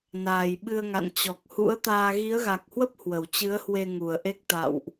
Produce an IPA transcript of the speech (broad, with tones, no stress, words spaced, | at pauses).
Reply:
naː˨˩jɓɨ˧ə̯ŋa̰˧˨n t͡ɕɔ˨˩k̚hṵ˧˥ə̯t̪aː˧ ɣi˨˦ə̯ɣa˨˩k̚hwə˦˥p̚ hwə˨˩wt͡ɕɨ˨˦ə̯hwe˧ ŋu˨˩ə̯ʔe˦˥k̚ t̪a̰˧˨wʔ